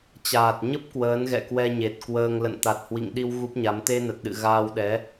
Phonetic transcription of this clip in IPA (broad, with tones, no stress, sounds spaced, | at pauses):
t͡ɕ aː˨˩ t̚ ɲ ə˦˥ p̚ k w əː˨˦ n ɣ ɛ̰˧˨ k w ɛ˧ ɲ e˨˩ t̚ k w əː˧ ŋ l ə̰˧˨ n t̪ a˨˩ t̚ h w ḭ˧˨ ŋ ɗ i˧ w ɣ u˦˥ p̚ ɲ a˨˦ m t̪ e˧ n ə˨˩ t̚ ɗ ɨ̰˧˨ ɣ aː˧ w ɗ ɛ˨˦